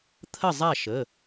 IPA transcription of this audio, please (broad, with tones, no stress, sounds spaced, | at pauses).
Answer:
t̪ʰ ə˥˨ zˤ a˥˨ ʃ ə˩˧˩